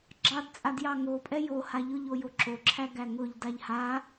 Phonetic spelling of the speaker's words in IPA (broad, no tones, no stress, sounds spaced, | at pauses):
ɡ͡ǁ ɑ d t͡sʼ a d j ɑ ŋ o pʼ ɛ j o h a ʎ ʊ ʎ o j o ǁ o ǁʰ æ ɡ æ ŋ ʊ ʎ d a ʎ h a